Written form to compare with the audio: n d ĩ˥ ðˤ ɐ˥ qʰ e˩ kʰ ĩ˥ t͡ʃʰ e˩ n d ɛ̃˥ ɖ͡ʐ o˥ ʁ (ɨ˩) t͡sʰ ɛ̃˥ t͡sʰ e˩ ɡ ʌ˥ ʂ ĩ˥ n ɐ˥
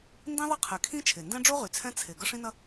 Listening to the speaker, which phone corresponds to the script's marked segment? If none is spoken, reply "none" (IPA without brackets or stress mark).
y˩